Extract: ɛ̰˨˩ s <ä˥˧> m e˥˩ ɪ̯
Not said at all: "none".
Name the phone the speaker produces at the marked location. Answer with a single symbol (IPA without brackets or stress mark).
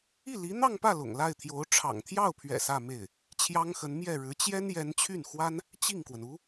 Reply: ä˥˧